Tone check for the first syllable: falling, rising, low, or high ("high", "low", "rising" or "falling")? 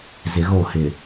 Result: low